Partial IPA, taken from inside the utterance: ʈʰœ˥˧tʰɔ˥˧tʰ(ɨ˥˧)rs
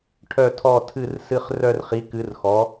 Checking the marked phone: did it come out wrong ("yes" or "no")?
no